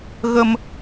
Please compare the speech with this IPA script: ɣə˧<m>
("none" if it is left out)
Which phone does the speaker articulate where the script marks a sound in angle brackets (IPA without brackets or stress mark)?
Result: m